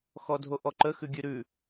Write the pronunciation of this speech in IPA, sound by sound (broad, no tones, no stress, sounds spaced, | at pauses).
x ɔ dʱ o ʔ ɔ ǃ ə x ʉ ɡʲ ʉ ɾ ʉ